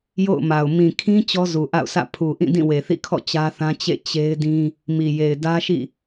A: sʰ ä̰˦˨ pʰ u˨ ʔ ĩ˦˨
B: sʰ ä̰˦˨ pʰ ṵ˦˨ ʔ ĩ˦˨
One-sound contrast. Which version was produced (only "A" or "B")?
A